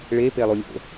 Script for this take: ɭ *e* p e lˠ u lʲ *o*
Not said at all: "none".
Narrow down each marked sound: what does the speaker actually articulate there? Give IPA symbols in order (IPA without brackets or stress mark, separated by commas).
e, o̰